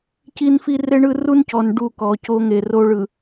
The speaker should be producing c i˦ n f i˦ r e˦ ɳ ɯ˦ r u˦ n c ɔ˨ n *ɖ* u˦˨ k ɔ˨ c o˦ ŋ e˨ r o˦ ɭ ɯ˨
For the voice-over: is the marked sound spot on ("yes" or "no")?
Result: yes